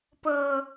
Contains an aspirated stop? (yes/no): no